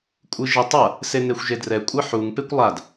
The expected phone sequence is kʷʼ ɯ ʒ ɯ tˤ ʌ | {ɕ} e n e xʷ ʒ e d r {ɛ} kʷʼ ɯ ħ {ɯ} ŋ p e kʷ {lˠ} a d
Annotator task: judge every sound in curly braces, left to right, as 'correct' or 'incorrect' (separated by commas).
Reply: incorrect, correct, incorrect, correct